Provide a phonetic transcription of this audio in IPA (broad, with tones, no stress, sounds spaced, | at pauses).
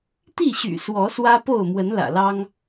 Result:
t̪ i˥˨ ɕ y̰˨˩ s w ɔ˨˦ s w ä˦ p o˥˨ ʊ̯ m w ə˨˦ n l ä̰˨˩ l ɑ˦ ŋ